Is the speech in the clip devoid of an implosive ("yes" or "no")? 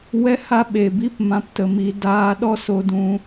no